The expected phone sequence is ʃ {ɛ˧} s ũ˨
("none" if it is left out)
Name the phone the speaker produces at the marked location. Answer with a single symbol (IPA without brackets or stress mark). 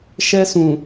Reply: ɛ˧